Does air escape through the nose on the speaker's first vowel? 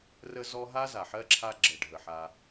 no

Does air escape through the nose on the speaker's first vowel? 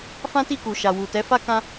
yes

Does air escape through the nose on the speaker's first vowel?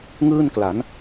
no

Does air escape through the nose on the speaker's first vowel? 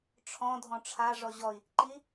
yes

